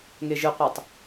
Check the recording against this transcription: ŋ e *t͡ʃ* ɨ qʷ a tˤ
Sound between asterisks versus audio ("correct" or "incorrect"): incorrect